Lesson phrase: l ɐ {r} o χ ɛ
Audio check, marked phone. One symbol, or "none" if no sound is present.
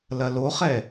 l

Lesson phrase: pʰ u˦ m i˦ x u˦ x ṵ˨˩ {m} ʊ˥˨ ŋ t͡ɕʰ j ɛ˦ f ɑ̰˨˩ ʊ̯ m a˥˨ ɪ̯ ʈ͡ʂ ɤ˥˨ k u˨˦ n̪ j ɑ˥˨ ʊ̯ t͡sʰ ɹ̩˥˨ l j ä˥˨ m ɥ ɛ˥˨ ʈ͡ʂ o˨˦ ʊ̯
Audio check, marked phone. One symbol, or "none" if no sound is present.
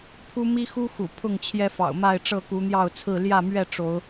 pʰ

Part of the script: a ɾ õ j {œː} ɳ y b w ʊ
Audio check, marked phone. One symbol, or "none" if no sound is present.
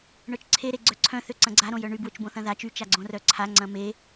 œ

